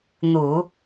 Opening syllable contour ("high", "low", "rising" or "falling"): low